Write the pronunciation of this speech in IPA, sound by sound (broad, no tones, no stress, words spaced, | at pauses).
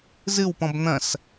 zɨwpɔ̃b n̪ɐ̃s